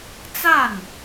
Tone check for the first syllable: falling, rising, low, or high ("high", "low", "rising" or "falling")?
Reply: falling